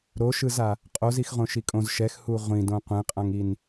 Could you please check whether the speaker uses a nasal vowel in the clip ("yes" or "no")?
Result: yes